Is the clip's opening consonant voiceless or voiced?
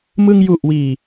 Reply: voiced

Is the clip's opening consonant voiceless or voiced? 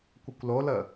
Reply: voiceless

